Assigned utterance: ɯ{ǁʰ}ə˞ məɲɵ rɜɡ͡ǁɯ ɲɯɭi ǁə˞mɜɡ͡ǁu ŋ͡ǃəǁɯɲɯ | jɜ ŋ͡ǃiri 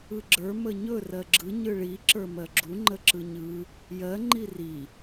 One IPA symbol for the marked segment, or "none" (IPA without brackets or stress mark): ɡ͡ǁ